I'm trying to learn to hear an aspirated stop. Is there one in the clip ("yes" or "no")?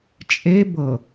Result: no